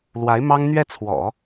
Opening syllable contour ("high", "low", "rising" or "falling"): rising